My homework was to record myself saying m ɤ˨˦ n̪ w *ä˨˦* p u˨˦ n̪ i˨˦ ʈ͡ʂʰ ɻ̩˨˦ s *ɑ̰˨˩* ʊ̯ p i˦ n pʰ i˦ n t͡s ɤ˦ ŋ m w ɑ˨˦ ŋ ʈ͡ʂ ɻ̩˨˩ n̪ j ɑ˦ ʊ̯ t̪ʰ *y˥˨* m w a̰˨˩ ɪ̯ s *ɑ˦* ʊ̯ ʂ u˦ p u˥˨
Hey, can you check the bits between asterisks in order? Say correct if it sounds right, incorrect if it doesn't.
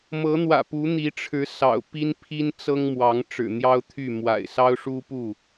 incorrect: ä̰˨˩, correct, correct, correct

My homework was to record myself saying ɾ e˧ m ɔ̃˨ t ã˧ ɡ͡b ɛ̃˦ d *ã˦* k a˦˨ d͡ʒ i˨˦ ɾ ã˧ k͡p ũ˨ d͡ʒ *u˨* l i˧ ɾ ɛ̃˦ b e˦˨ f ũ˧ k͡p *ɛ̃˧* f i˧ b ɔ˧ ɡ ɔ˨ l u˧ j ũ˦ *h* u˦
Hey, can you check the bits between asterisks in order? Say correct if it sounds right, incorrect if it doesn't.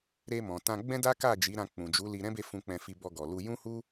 incorrect: a˦, incorrect: u˨˦, correct, correct

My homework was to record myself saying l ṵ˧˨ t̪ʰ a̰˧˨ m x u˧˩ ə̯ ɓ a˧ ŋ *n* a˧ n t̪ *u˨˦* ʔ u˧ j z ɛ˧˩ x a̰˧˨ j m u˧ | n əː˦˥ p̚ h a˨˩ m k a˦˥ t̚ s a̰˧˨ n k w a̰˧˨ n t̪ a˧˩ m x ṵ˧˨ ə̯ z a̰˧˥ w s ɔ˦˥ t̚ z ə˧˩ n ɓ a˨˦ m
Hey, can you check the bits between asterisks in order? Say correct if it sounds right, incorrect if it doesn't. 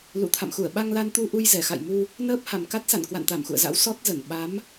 incorrect: l, incorrect: u˧

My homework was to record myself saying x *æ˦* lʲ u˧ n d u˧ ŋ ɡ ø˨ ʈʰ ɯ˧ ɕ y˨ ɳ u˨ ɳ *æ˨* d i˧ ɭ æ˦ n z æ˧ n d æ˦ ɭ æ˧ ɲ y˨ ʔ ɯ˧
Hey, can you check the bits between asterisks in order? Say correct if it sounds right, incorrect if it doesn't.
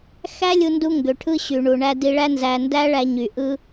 correct, incorrect: æ˧

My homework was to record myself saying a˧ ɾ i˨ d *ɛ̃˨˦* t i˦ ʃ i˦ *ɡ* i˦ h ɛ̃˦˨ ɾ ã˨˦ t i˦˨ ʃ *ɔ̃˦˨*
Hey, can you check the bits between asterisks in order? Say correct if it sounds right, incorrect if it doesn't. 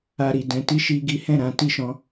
correct, correct, incorrect: ɔ̃˧

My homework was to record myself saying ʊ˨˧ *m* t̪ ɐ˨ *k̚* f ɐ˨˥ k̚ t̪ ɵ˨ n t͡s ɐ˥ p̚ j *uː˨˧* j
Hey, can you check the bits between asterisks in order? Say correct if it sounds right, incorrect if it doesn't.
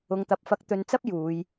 incorrect: ŋ, incorrect: p̚, correct

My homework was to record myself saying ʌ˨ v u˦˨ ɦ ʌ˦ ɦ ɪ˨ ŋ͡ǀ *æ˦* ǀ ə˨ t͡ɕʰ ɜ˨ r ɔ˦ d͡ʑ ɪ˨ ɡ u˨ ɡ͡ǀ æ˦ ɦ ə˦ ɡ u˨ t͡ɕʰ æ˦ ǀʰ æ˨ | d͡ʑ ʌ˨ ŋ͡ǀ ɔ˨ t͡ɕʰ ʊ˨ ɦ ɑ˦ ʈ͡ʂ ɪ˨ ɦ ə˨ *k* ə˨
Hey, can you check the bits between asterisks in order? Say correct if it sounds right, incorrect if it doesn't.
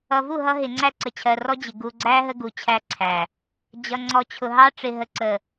incorrect: æ˦˨, incorrect: ǀ

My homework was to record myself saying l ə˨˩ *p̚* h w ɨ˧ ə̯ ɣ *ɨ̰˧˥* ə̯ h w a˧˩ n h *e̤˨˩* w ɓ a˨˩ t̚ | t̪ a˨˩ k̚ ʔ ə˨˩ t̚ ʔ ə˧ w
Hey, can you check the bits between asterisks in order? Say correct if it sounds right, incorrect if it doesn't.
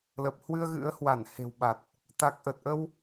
correct, correct, correct

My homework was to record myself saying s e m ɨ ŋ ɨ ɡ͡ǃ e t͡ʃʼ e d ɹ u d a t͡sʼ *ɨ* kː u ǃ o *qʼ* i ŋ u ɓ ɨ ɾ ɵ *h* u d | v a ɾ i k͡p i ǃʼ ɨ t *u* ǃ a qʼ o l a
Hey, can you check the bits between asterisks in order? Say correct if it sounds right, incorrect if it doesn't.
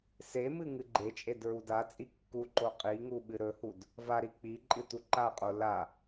incorrect: i, correct, correct, correct

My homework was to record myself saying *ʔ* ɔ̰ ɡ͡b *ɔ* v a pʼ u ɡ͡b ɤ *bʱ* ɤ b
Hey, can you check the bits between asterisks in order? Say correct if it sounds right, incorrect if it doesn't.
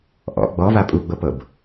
correct, correct, incorrect: p

